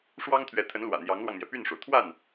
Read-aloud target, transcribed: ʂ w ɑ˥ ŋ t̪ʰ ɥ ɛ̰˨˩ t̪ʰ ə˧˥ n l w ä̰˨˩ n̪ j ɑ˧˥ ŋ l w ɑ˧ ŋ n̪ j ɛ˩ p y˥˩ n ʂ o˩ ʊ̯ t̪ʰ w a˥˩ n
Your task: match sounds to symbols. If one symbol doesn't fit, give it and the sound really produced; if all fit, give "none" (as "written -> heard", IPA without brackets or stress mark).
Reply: ɛ̰˨˩ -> ɛ˧˥